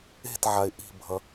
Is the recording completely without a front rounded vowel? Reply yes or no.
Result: yes